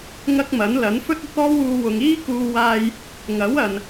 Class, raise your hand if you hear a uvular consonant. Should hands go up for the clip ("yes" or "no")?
no